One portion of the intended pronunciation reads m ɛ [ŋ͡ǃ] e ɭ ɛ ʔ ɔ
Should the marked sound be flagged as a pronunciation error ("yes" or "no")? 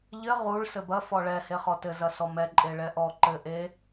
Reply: yes